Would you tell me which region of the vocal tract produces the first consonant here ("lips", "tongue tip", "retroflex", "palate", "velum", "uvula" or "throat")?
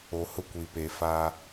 throat